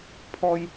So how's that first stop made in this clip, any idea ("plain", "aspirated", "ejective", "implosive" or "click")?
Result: aspirated